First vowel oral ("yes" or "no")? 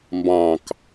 no